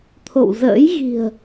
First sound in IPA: t̪ʰ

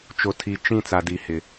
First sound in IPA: t͡ʃ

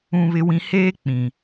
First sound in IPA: ũ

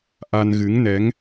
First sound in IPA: ʔ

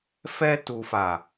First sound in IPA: f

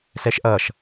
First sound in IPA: s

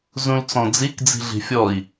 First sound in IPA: z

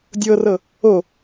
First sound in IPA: dʲ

